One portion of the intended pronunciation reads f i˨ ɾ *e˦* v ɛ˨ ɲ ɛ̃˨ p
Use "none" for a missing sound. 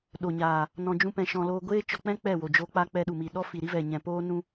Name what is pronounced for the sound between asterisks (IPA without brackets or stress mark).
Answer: i˦